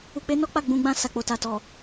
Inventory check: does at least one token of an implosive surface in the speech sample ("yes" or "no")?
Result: no